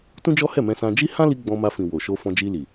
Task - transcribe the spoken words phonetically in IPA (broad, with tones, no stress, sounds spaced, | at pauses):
t ũ˦ d͡ʒ ɔ˦ h ɛ˦˨ m ɛ̃˧ s ã˧ d͡ʒ i˦ h ã˦ l i˧ ɡ͡b ɔ̃˧ m a˧ f ĩ˨ w o˨ ʃ o˧ f ɔ̃˧ d͡ʒ i˧ l i˨